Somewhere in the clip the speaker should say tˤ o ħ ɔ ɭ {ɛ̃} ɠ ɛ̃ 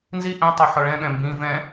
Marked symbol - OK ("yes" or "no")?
yes